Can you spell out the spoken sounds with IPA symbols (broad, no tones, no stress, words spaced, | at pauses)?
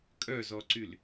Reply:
kʼœzɔǀyl